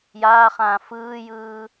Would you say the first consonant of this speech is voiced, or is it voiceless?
voiced